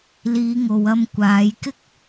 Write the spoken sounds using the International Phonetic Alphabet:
l iː˨˧ ŋ o˨ w ɐ˧ m kʷ aː˨˧ j k ɪ˥ k̚

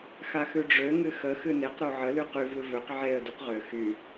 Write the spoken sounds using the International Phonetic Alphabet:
x a x ʉ ɖ͡ʐ ø ŋ ɨ x ə x ɨ n e q ɾ o ʕ ə l y q y v ɨ v ø q ʕ e ə̯ d y q ʁ ø x y

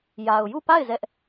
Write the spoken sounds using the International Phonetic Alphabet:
j a˨ ʊ̯ j u˦˨ p a˦˨ ɪ̯ z ɛ˦ ʔ

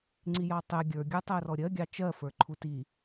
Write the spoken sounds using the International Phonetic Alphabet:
ŋ͡ǀ i j ɑ tˤ ɛ ɡʲ ə˞ ɡʲ ə˞ tˤ ɜ r ɔ ɾʲ ɜ ɡʲ ɑ t͡ʃ ɜ f ə˞ ǃʰ u t i

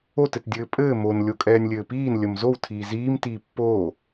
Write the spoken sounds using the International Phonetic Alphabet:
o t ɘ t dʲ ɘː pʼ ɘː m o n lʲ o kʼ ɛː nʲ lʲ ɘː p iː n lʲ ə m z o w tʰ iː z iː m t iː pː oː

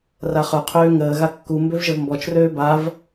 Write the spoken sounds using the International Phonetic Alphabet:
r a χ œ qʰ øː ŋ əː ɣ a kː u m b ø v ʒ ə v m b ɔ t͡ʃ r øː b a v

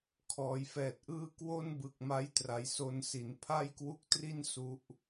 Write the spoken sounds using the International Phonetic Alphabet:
kʰ ɔː˩˦ j f ɛː˨˩ t̚ ʔ ɯː˥˩ k w o˥˩ n b ɯ˨˩ k̚ m a˦˥ j t r a˩˦ j s o˧ n s i˩˦ n pʰ a˥˩ j k w u˦˥ k̚ t r i˥˩ n s u˦˥ ʔ

